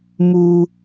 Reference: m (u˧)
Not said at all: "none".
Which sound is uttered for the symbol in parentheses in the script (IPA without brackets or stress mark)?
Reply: u˧